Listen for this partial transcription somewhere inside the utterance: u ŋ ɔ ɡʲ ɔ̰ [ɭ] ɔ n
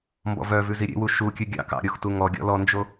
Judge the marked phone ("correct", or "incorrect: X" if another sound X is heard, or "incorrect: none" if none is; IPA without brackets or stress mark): incorrect: l